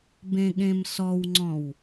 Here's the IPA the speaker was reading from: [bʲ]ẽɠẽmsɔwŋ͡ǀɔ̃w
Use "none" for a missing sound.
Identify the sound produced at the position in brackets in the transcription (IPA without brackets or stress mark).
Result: b